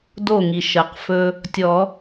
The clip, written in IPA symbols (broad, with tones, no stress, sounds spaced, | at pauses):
d o˧˩ ŋ i˩ ʃ əː˩ q f ɵː˦ | tʲ ɔː˨˩˦